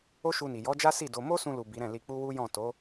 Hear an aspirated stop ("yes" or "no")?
no